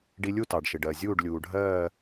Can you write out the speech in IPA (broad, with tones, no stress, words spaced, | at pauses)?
ɖi˧lʲu˥˨tɑ˩ɖʃɪ˩ ɖɜ˩zʲuː˥˨ɖ lʲuː˩ɖʱɜː˥˨